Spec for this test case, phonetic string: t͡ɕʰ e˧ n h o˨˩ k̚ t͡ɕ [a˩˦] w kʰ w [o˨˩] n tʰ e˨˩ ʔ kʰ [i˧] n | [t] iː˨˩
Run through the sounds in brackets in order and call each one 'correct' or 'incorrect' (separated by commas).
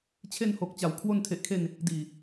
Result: incorrect, incorrect, incorrect, incorrect